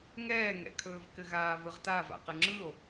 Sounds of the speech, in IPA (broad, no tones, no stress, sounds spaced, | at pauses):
ŋ ɛː ŋ ɛ̰ kʰ ɵː v k ɘ ɣ aː v ɯ ʁ t a v a̰ q ɘ ŋ͡ǁ ɯ o̯